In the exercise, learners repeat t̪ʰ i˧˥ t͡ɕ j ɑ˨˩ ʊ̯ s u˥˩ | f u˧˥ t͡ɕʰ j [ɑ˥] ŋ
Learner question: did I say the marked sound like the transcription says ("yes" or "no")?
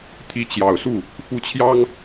yes